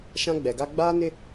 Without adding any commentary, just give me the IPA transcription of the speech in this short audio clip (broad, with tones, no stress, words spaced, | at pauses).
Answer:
ʃã˦ɡ͡bɛ˨ɡa˦ ɡ͡baː˦nɪ˦